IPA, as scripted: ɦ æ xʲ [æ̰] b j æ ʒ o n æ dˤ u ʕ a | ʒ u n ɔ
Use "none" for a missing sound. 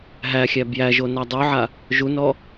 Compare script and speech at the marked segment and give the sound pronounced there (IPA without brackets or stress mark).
æ